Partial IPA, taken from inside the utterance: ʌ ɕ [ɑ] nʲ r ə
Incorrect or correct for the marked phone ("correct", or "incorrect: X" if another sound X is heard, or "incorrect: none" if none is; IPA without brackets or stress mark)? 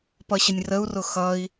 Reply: incorrect: ə